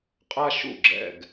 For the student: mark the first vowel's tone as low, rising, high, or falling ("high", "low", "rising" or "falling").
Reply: high